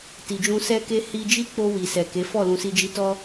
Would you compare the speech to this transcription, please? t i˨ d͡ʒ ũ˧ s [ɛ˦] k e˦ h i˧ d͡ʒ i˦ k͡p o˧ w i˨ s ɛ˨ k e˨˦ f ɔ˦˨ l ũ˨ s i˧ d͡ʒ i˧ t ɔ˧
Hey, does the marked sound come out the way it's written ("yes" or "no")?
yes